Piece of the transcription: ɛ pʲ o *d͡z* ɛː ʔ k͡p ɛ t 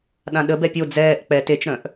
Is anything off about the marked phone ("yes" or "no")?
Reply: no